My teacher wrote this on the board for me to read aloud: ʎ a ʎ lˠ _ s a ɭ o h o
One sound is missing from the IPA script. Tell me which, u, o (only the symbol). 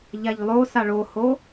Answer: o